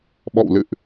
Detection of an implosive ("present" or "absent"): present